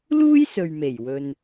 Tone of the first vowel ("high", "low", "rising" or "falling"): high